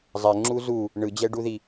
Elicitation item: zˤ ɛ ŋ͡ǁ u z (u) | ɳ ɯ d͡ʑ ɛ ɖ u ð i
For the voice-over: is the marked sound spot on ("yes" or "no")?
yes